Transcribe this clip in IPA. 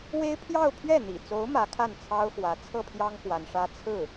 w e˥ ɪ̯ pʰ j ɑ˥˧ ʊ̯ pʰ ɥ ɛ˥˩ n̪ ḭ˨˩ t͡s o˧˥ ʊ̯ m ä˧˥ kʰ a˥˩ n t͡sʰ ɑ˥ ʊ̯ x w ä˧˥ t͡sʰ ɤ˥˩ pʰ j ɑ˥ ŋ k w a˧˥ n ʂ ä˥ t͡sʰ ɹ̩˥˩

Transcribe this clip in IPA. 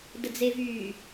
d ə d͡z e v yː

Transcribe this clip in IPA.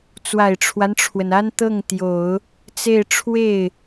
t͡s w a˨˩ ɪ̯ ʈ͡ʂʰ w a˦ n ʈ͡ʂʰ w ə˩ n a˥ n t̪ ɤ˥˩ ŋ t̪ j o˨˩˦ ʊ̯ | t͡s e˥˧ ɪ̯ ʈ͡ʂʰ w e˥˩ ɪ̯

